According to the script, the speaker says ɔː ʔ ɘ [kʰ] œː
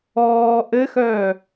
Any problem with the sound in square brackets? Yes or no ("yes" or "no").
yes